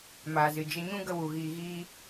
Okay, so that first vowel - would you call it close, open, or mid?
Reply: open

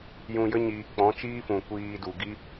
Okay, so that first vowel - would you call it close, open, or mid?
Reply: close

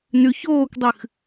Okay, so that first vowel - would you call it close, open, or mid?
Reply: close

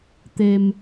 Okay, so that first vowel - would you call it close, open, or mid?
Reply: mid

